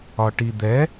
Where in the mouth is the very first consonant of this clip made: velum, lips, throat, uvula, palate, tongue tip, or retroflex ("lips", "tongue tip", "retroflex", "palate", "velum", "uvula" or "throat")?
retroflex